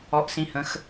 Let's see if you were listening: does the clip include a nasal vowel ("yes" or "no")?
yes